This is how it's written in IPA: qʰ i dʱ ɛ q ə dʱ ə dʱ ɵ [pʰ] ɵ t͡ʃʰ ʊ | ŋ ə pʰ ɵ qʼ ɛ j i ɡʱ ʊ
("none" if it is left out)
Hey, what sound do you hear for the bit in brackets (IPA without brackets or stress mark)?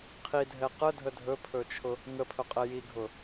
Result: pʰ